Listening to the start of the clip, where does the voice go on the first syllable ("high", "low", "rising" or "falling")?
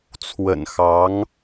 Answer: low